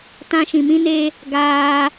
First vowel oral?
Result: no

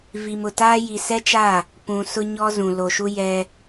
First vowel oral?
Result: yes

